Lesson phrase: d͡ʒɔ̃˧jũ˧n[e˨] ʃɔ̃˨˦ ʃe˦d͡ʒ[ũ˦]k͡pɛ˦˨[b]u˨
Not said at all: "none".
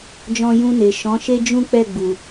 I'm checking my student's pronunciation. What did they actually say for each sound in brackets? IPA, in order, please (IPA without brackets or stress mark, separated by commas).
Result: e˨, ũ˦, ɡ͡b